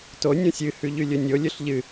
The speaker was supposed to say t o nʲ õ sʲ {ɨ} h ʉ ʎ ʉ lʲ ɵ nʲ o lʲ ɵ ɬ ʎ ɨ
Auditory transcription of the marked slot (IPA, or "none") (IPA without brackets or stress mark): ɨ